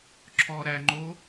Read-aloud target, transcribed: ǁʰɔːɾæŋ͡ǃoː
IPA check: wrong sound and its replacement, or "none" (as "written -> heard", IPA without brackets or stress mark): none